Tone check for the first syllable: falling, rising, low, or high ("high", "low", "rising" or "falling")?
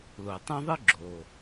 low